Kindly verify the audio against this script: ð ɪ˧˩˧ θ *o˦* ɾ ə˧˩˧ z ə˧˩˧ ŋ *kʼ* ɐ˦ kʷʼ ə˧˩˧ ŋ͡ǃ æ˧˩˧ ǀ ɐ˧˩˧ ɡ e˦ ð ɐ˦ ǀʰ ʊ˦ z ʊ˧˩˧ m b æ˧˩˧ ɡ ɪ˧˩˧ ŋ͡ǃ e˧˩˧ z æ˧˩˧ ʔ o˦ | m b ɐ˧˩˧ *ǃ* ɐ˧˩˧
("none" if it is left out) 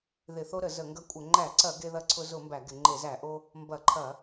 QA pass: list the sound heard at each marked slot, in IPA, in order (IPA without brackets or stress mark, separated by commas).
o˦, ɡ, ǃʰ